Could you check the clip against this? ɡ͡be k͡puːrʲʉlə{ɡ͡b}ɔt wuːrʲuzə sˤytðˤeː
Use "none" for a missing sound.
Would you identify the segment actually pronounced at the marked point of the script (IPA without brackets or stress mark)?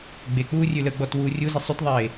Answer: ɡ͡b